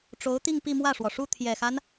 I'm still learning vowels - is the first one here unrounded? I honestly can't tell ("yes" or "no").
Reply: no